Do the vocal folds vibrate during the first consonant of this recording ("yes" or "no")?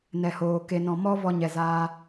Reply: yes